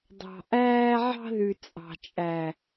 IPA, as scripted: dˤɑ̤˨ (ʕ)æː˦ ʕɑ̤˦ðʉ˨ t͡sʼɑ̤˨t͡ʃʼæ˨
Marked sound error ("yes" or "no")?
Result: yes